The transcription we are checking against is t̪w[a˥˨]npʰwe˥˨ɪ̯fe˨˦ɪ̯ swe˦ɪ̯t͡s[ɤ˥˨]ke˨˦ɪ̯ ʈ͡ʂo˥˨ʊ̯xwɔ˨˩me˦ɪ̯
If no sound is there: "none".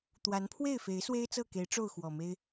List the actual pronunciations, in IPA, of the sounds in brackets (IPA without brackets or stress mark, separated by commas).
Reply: a˨˦, ɤ˥˨